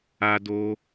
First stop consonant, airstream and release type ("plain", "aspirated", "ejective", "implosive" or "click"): plain